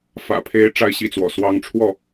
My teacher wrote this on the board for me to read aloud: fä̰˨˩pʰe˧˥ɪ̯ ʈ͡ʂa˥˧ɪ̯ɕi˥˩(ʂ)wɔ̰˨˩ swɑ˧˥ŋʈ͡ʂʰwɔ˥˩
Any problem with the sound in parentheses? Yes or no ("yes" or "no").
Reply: yes